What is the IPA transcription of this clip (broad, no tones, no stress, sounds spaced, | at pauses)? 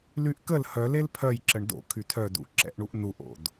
l y ʔ k ə l h œ l e l pʰ œ j ǁ ə ɳ d o̰ kʰ y tʰ œ d ṵ ǁ ɛ̰ ʔ ɳ u ʔ n u ʔ o̰ d